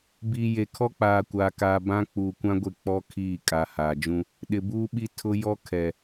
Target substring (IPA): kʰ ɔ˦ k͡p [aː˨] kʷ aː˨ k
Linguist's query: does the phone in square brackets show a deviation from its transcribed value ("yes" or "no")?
no